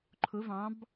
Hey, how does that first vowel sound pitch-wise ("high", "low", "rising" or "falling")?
rising